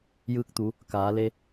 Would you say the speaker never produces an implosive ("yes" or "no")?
yes